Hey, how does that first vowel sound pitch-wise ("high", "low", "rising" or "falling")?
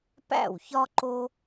falling